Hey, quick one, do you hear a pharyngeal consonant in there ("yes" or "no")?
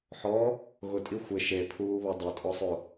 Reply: yes